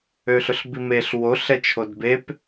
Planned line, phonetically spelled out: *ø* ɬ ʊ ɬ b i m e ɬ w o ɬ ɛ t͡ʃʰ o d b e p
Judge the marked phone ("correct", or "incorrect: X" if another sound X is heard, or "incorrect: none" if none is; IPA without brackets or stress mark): correct